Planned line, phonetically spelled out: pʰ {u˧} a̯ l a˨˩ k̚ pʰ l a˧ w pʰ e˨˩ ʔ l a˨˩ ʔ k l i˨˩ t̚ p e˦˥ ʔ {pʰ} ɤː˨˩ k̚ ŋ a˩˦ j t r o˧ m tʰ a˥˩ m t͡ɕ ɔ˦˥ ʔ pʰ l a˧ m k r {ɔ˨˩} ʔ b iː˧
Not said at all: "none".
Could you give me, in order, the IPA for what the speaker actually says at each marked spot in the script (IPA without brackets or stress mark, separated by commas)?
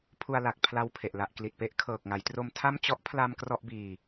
u˧, kʰ, ɔ˥˩